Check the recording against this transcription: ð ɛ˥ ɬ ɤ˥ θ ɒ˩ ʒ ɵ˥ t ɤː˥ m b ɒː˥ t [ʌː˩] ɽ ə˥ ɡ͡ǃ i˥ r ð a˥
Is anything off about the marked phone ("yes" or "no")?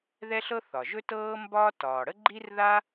yes